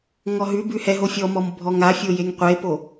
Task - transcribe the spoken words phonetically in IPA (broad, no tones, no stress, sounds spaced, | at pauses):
ŋ ɔ ɦ ʉ b ʉ h ɛ ɦ o fʲ ɔ m ɔ m bʱ ɔ ŋ a fʲ o j e ŋ qʷ e p o